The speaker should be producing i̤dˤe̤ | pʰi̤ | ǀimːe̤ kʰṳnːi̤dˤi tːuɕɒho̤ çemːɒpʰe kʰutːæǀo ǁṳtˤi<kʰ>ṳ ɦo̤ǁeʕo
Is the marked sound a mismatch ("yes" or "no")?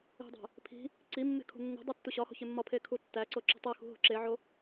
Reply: yes